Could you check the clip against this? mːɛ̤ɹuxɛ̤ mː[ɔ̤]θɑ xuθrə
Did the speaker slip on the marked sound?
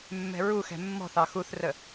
no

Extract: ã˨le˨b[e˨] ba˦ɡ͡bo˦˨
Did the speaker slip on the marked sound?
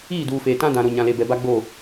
yes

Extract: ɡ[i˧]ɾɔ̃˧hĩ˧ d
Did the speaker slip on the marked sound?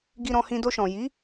no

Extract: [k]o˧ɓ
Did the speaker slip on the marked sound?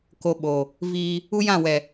no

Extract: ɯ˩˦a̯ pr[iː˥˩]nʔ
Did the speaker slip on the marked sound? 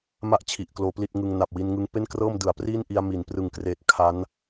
no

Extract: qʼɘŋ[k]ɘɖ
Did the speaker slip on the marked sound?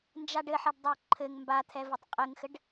yes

